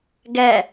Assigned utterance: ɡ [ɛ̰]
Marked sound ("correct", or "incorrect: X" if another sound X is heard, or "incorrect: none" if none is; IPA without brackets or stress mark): incorrect: ɛ